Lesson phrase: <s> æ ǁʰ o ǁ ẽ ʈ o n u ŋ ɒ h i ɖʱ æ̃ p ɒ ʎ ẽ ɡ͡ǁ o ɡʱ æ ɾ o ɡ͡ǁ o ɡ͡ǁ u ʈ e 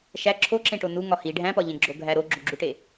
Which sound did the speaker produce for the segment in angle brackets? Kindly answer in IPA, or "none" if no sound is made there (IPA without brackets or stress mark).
ʃ